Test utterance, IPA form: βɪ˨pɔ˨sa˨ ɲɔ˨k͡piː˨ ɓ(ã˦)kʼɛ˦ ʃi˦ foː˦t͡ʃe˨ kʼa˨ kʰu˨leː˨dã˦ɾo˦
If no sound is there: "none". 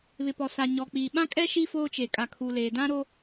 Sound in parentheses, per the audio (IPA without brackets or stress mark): ã˦